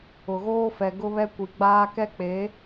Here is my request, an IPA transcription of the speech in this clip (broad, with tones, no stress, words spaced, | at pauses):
ʊ˨ɣoː˦fɛ˨ ɡʊ˦βɛ˦kʷi˨ɡ͡baː˦ kɛ˦k͡pe˨˦